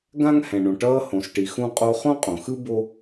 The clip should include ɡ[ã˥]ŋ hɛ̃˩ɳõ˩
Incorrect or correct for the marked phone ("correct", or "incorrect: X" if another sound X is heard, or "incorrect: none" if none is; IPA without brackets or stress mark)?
correct